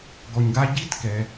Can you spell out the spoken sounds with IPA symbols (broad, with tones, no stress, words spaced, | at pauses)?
ɡɔ˨ɲɡa˥ ɟi˦tkɛ˩